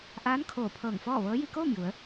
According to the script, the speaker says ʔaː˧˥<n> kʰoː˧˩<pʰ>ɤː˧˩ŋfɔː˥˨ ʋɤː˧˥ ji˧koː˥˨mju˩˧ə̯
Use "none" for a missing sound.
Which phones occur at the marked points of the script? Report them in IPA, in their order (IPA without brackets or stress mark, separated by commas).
n, pʰ